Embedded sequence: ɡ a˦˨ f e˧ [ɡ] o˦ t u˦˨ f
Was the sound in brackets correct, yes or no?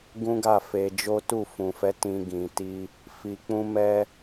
no